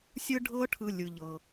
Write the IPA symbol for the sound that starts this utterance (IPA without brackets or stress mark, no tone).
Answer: sʲ